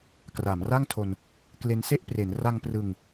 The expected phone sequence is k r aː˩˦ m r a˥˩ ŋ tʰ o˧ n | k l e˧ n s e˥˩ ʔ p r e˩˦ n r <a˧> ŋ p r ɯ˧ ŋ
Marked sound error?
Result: no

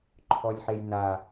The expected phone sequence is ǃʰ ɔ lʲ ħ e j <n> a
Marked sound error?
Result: no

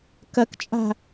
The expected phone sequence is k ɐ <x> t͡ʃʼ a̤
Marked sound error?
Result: yes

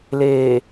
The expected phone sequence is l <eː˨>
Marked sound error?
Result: no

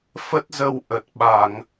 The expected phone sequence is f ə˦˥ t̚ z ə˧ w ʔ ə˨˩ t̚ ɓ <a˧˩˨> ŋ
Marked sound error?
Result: no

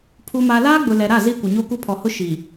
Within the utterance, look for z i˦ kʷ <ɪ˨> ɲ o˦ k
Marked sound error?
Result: no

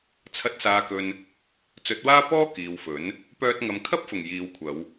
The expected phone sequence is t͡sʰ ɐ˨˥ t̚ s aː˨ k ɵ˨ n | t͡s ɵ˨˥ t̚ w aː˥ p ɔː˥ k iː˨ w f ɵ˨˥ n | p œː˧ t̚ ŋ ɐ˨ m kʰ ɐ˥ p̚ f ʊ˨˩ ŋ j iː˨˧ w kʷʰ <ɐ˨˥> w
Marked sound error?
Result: yes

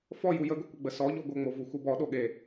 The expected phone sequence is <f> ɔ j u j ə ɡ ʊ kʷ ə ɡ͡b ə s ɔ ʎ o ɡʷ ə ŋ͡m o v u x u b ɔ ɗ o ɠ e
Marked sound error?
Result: no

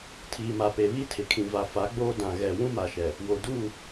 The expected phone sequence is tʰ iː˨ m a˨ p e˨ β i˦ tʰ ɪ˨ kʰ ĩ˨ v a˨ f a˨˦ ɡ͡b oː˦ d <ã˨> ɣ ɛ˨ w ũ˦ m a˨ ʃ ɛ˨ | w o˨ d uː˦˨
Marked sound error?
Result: no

